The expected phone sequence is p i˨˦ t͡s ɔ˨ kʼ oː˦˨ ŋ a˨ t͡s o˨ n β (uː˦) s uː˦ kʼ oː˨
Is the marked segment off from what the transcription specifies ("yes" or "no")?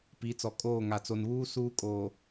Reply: no